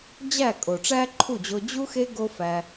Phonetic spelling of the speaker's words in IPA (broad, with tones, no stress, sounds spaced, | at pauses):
d͡ʑ æ˦˨ kʼ o˨ ʈ͡ʂ æ˦ ǃʰ u˦˨ d͡ʑ o˧ d͡ʑ u˦ x e˦ ɡ o˦ f æ˧